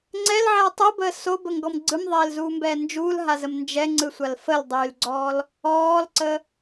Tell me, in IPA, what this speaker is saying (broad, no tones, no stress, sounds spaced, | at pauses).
ŋ͡ǀ ɛ l ʕ ɛː tˤ u b əː s o b ə ŋ ɡ ɔ m ɡ͡ǀ ɯ m ðˤ ɛː l z uː m b ɛː n d͡ʒ uː l ɦ a z ə m n d͡ʒ ɛ ŋ͡ǀ ɯ sʷ a l f ə l dˤ yː l ɡ͡ǀ ɔː l | ɔː l ǀ ə